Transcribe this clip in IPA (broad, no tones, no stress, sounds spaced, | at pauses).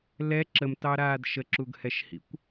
l ɛ ǁ ə m t ɑ ɾ aː d ʃ ə ǁ u ɡ h ɛ ʃ h ḭ kʷ